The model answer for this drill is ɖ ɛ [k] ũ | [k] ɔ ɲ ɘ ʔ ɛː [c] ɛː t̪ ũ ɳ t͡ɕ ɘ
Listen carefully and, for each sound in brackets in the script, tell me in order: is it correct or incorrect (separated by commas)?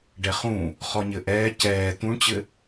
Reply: incorrect, incorrect, correct